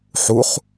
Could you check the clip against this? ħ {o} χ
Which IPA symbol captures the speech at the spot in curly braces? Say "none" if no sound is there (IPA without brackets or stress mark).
u